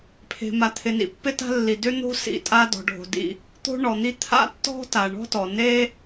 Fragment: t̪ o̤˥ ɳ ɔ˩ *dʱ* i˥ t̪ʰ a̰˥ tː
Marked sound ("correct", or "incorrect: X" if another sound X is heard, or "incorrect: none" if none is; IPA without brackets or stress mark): incorrect: n̪